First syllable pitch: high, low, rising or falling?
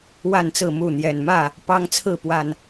falling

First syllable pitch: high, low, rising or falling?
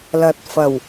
rising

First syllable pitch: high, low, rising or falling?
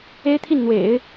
high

